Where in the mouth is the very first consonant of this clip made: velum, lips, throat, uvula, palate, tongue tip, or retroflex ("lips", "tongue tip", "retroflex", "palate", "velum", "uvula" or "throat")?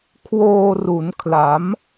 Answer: velum